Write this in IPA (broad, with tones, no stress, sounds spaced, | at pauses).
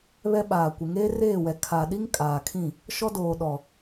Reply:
β ɛ˦ ɓ aː˨ kʷ ɪ˨ ŋ eː˦ r eː˦˨ w ɛ˨ kʰ a˨ ɗ i˦ ŋ kʼ aː˨ kʰ ĩ˦˨ | ʃ ɔ˦ d oː˨ ɗ ɔ˨